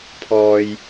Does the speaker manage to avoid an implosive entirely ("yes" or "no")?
yes